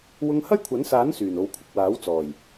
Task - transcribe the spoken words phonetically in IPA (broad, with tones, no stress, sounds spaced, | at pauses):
w ʊ˧ ŋ h ɐ˥ j kʷʰ ɐ˨˥ n s aː˨˥ n s yː˨˩ n o˨ w kʷʰ ɪ˨ k̚ w aː˨˥ w t͡s ɔː˨˩ j